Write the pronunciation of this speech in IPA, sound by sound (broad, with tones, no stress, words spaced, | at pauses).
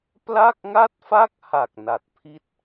pla˥˩k̚ŋa˥˩t̚fa˥˩k̚ha˨˩k̚ na˨˩t̚pʰi˥˩t̚